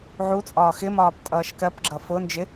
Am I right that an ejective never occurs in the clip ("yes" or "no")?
no